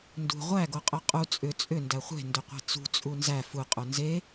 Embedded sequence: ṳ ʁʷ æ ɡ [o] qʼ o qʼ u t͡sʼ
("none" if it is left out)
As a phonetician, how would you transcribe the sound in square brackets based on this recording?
o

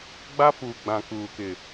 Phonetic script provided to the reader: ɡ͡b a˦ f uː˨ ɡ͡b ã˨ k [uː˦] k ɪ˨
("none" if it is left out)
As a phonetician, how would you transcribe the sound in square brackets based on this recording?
uː˨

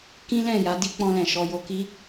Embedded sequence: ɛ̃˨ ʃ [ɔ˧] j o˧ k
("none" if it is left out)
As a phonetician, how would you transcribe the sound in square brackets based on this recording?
ɔ˧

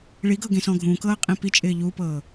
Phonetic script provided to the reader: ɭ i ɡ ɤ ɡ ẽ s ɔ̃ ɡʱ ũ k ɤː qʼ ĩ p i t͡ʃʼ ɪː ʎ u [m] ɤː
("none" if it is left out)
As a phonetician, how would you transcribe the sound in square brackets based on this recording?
p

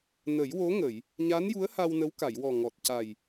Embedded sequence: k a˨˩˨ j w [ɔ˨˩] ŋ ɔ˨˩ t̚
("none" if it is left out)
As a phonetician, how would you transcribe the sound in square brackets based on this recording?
ɔ˨˩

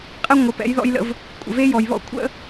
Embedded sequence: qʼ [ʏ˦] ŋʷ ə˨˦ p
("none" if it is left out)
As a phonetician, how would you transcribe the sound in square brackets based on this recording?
ɛ˦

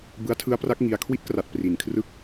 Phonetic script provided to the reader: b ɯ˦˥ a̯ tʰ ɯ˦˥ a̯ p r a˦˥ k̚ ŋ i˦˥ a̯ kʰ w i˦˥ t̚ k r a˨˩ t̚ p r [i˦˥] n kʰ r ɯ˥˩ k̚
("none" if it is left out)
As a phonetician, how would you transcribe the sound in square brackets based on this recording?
i˨˩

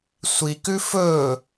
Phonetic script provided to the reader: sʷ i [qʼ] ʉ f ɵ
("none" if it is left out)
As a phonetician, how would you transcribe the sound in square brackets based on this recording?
k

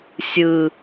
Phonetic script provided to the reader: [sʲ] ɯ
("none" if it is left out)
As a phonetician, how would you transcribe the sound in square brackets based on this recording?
sʲ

